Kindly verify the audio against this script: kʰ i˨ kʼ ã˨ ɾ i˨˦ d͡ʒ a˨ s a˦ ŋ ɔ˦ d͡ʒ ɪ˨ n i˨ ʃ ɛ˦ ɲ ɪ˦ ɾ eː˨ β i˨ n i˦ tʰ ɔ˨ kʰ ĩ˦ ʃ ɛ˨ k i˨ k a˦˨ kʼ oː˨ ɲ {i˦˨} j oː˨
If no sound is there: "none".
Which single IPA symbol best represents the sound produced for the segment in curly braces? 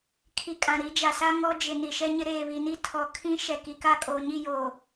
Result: i˦˨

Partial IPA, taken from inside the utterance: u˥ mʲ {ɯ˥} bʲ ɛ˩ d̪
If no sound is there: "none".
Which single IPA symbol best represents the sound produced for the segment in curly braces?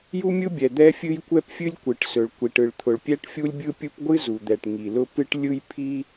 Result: ɯ˥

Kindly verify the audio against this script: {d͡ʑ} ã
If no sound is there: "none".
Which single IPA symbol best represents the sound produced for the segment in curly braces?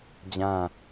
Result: d͡ʑ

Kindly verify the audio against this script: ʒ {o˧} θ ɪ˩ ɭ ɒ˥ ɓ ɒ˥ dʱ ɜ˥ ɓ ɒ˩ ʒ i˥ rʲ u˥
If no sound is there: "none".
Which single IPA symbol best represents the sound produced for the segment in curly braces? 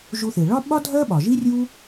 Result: u˧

